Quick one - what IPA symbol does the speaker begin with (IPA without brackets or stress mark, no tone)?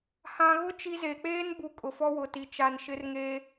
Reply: h